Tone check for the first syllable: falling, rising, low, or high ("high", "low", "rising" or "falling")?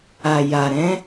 low